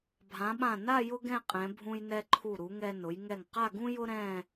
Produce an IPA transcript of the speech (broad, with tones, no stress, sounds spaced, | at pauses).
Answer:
bʱ ã˩˧ ɓ ã˧˩ n a˥˧ j ʊ˥ ɡ ɛ̃˥˧ qʼ ɛ̃˩˧ bʱ ũ˧ j n ɛ˧ ǃʰ u˧˩ ɾ u˩˧ ŋ ɛ˧ n ʊ˩˧ j ŋ ɛ˧˩ ŋ q a˥˧ ɡ ũ˥ j ʊ˥ ɾ ɛ̃˥˧